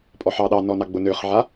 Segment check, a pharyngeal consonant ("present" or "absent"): present